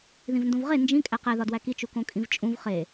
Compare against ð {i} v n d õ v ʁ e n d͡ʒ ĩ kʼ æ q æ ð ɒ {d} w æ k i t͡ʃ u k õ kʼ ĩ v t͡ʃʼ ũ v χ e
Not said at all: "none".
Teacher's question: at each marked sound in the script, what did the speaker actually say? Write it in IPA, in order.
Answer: ĩ, d

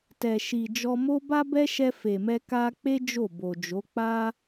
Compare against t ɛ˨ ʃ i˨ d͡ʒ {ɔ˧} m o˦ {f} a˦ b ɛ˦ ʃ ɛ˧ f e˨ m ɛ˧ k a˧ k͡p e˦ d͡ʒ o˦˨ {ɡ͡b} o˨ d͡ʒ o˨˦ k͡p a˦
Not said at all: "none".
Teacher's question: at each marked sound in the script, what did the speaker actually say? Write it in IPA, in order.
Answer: ɔ˧, b, b

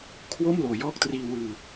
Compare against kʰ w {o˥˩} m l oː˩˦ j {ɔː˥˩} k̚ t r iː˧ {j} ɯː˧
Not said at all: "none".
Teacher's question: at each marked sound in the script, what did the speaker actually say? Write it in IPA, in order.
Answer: o˥˩, ɔː˥˩, w

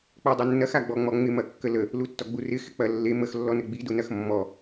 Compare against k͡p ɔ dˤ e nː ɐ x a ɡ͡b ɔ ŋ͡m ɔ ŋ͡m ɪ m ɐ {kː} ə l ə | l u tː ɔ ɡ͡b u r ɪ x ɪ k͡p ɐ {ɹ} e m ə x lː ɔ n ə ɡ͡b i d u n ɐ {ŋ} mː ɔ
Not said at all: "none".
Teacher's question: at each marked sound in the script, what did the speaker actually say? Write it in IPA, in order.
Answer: kː, lː, x

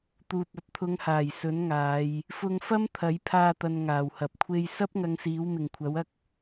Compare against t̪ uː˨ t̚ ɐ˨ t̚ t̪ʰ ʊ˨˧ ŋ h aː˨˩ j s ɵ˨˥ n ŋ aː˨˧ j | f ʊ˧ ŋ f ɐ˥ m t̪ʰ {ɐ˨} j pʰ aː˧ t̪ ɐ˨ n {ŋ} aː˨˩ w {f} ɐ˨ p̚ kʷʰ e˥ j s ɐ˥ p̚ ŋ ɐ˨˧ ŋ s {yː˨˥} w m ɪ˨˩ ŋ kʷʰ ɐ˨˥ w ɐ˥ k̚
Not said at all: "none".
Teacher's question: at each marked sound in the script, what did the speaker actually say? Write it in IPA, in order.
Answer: ɐ˨˥, ŋ, h, iː˨˥

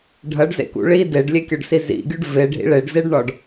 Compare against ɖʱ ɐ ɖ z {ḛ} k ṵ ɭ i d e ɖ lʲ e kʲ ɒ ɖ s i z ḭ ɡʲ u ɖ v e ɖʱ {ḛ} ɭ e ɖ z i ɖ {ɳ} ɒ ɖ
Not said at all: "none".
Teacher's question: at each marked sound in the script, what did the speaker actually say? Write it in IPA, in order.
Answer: ḛ, ḭ, ɳ

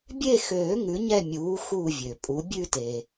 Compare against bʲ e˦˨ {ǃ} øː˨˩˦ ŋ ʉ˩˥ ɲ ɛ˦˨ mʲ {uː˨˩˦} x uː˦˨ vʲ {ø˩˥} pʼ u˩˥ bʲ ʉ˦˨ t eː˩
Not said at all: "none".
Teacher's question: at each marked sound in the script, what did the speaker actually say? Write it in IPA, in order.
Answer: x, uː˩˥, ø˩

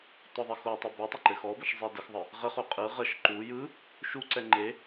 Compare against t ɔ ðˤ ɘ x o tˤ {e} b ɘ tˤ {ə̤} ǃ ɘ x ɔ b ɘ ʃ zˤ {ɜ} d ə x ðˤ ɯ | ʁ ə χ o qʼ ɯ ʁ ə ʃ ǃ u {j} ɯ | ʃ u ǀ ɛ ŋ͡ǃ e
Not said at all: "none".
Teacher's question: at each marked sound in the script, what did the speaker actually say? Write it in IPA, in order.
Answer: ɘ, ə, ɛ, j

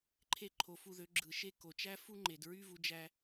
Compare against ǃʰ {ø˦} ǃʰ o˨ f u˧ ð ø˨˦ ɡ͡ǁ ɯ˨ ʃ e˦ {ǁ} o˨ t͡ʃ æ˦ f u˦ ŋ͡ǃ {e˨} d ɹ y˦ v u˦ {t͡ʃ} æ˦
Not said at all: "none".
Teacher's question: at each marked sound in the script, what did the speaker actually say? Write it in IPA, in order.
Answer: e˦, k, e˨, d͡ʒ

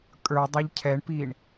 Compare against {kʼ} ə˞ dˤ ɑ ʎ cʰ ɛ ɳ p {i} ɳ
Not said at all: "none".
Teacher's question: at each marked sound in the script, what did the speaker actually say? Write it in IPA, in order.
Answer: kʼ, iː

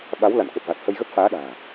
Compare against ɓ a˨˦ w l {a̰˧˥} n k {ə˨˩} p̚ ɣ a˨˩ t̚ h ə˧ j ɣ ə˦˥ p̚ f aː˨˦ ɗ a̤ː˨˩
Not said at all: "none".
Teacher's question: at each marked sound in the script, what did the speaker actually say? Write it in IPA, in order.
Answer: a̰˧˨, ə˨˩

